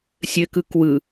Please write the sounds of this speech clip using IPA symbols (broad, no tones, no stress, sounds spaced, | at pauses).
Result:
sʲ ɘ k ɯ k w ɯ